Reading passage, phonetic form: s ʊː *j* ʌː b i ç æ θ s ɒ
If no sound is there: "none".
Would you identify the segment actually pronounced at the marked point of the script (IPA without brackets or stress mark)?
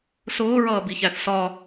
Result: ɹ